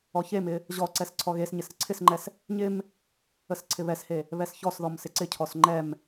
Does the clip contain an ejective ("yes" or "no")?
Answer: no